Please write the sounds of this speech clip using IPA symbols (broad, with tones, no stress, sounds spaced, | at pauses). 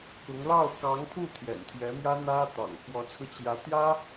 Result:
k ʊ˧˥ ŋ l ɑ˥˩ ʊ̯ k ɑ˧˥ ŋ pʰ u˥˩ t̪ʰ j ɛ̰˨˩ n t̪ʰ ɥ ɛ˧˥ m j ä˥ n̪ ä˥ t̪ ɑ̰˨˩ ŋ f w ɔ˧˥ t͡sʰ ɹ̩˧ t͡ɕ j ä˧˥ t̪ j ä˥